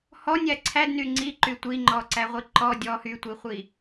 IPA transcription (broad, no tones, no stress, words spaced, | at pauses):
hɔnʲæ ǀʰædny ŋ͡ǀiǃy tʷiŋ͡ǃɔǀæʁʷi ǃɔ dʲɔ hytʷiχʷi